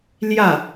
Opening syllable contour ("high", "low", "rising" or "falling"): falling